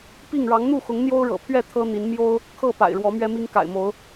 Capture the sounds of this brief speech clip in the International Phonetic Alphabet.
p i˥˨ ŋ ɻ ɑ˨˦ ŋ n̪ u˥˨ x ʊ˨˦ ŋ n̪ j o˦ ʊ̯ ɻ ɤ̰˨˩ pʰ ɥ ɛ˥˨ t̪ʰ ɤ˦ n̪ i˨˦ n m j o˦ ʊ̯ | kʰ ɤ˥˨ p a̰˨˩ ɪ̯ ɻ w ɔ˨˦ m ɥ ɛ˦ m i˦ ŋ k a̰˨˩ ɪ̯ m o˨˦ ʊ̯

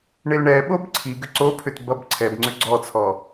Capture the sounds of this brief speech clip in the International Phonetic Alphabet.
ɳ e l ɳ ɛ ɓ o b ǀʰ i ɡ ʏ ǀ o pʰ ʏ t b ʌ b ǀʰ ɛ b ŋ͡ǀ ʏ ɡ͡ǀ ɔ t͡sʰ ɔ

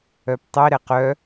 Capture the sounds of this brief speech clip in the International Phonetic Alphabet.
œ p tˤ i ɾ ɛ q œ

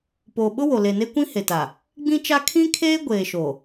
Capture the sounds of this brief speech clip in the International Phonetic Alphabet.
p oː˨ ɓ ʊ˦ w o˨ l e˨ n e˦ kʷ ĩ˦ h e˨ t a˨ | ɡ͡b ĩ˦ t͡ʃ a˦ kʰ ĩ˦ kʰ eː˦ ɡʷ eː˨ ʃ o˨

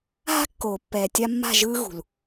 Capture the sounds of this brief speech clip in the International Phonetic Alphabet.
ɦ a̤˦ kː oː˨ pː ɛː˨ tʲ a˧ mː a̤˦˨ ʒ ɯː˦ ɣ ṳ˨ l

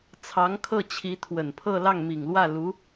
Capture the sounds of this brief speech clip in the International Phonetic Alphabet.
t͡sʰ ɑ˧˥ ŋ kʰ ɤ˥˩ t͡ɕʰ i˧˥ t̪ʰ w ə˨˩ n pʰ ɤ˥˧ l ɑ˥˩ ŋ m i˨˩ ŋ l w ä˥˩ l u˧˥

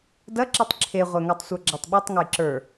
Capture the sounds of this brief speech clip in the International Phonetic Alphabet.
d ɐ ǁ i tˤ ǁʰ e ʁʷ ɛ ŋ a tˤ sʷ ə˞ ɡ͡ǁ a tˤ ɓ ɛ tˤ ŋ ɐ j ǁ ə˞

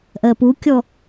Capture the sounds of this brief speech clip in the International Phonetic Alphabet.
ʔ ɜ p u kʲ ɔ

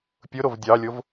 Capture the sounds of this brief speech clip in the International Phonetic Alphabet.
pʲ ʊ ɾ o v dʲ ɑ lʲ o v

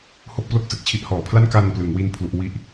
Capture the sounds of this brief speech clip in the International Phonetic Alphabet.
h o˥˩ k̚ p l o˥˩ k̚ s ɯ˨˩ k̚ t͡ɕʰ i˦˥ ʔ h ɔː˨˩ pʰ l a˥˩ n k a˧ n p l ɯ˩˦ ŋ w i˥˩ n pʰ l u˦˥ ʔ w i˥˩ ʔ

